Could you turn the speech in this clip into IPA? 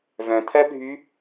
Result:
v œ̃ t̪ʰ ɜ bʱ y

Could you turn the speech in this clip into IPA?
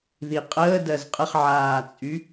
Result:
ð i qʼ əː d ɜ z qʼ ə χ ʕ aː t͡sʼ y

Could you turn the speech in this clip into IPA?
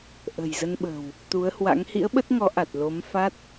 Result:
ʔ ə̤˨˩ j z ə˧ n ɓ ə̤˨˩ w | t̪ u˨˦ ə̯ h w a̰˧˥ ŋ h ḭ˧˥ ə̯ ɓ ə˦˥ t̚ ŋ ɔ˨˦ ʔ a˨˩ t̚ l o˨˦ m f a˦˥ t̚

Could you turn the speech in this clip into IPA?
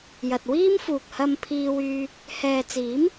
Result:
j ɐ˨ t̚ w iː˥ m f uː˨ k̚ h ɐ˧ m pʰ iː˧ w yː˧ | h ɛː˨ t͡s iː˨˥ m

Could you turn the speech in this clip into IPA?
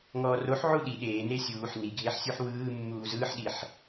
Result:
ŋ ɔː r o ħ ʕ u ɗ i ɗ eː n e sʲ uː ħ n i ɡʱ e ħ sʲ u ħ w ɯː mː uː z ɯː ħ ɗ i ħ

